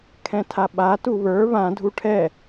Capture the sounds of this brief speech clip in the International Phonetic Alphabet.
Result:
kʰɛ̃tʰaɓa tuβə˞ βã dʱuʈʰɛ

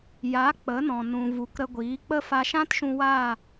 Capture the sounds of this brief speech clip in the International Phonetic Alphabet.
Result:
ja˨˦ k͡pə˨˦nɔ̃˨ nũ˨ vu˨kɾə˧ɡʷiː˨˦k͡pə˦ fa˧ʃã˦tʃũ˧ wa˦˨

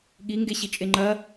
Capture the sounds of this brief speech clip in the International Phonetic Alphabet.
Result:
ɠiŋɡeɕit͡ʃʼe ŋ͡ǃɐ

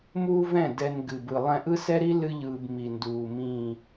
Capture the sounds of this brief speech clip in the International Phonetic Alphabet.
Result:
muː˦vɛ̃˦˨ dɛ˧nɡɨ˨bɯ˨ lˠɛ̃˧ʔɯ˦sɛ˦ɾi˦ lɨ˧ʎɯː˨b mi˨nduː˨ mĩː˨

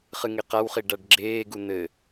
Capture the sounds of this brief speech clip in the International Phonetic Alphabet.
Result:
χɨŋeqawχi ɖaɖɡ͡ǁeːɡu n̪ɘ

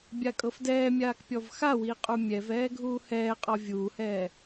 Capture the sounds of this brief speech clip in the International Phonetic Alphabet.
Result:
bʲakʼɤfdɛːmʲaːk pʲɔvxawi qʼumʲɛvɛː ɡʱuːhɛːqʼɔ vʲuːhɛː

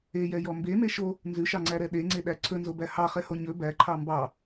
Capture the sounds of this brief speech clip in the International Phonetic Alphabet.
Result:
ejɛjɔ mbeme ʃo | nzʉʃɑŋ͡ǀæɾɛ ɗeŋ͡ǀeɗæ ǀʰɵnzobæ hɑχɛho ɲɵ bæǃʰɑ mbɑ

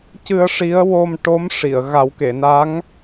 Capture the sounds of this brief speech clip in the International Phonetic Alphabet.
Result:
cɨ˧ə̯ʂi˧˥ə̯ wo˧m ʈo˧˥mʂi˨˩˨ə̯ ɣa˨˩˦wke˨˩˨na˧˥ŋ

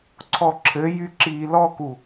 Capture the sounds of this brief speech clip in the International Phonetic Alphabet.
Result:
ǀʰɔǁʰɘjy ǁiːlɔku

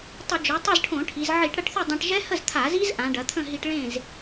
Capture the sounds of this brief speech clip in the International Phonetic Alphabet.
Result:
tˤʏ˧˩˧d͡ʒʏ˩˧ tˤe˥˨zʈʰõ˧˩˧ʈʰi˩˧z ʕi˧˩˧ʈ ɽɐ˥˨ʈθy˥˨dˤẽ˧ʈ ʒɛ˦˥hə˥˨z t̪ʰa˧˩˧zi˦˥z ʔã˩˧ ɖɐ˩˧t̪ʰə̃˥˨ ɦi˧ʈɭẽ˥˨z

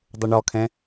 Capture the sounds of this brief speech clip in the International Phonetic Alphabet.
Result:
dˤʊɳɔkʰɛ̃

